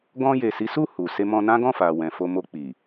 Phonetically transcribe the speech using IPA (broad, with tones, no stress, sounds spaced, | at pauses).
ɡ ɔ̃˧ j e˨ s i˨˦ s u˦˨ h u˨ s e˧ m ɔ̃˧ n ã˦ ɡ ɔ̃˦˨ f a˨ w ɛ̃˨ f o˧ m o˧ k͡p i˨